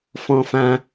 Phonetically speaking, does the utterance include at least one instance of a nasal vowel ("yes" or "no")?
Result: yes